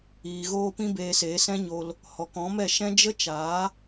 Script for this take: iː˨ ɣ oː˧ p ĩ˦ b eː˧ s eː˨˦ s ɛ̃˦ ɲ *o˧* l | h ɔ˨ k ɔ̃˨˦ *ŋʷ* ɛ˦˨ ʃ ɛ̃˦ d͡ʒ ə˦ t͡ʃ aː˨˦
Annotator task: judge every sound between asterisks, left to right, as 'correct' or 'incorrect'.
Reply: correct, incorrect

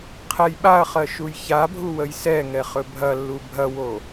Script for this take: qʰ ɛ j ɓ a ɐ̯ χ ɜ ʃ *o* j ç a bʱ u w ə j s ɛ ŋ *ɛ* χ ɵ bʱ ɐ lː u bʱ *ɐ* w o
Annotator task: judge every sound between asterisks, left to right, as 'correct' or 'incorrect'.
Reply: incorrect, correct, correct

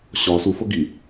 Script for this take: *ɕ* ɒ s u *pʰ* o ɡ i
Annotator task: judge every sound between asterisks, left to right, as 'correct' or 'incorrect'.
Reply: correct, incorrect

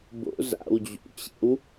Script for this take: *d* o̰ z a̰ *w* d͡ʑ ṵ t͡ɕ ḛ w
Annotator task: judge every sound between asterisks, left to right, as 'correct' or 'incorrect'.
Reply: incorrect, correct

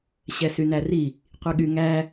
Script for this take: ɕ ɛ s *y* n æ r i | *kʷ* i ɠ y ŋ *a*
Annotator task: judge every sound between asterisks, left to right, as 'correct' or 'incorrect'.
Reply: correct, incorrect, incorrect

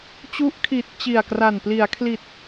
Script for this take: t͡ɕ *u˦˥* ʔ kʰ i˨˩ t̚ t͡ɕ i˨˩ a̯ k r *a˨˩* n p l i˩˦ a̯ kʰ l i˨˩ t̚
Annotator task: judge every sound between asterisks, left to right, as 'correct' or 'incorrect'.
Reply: correct, correct

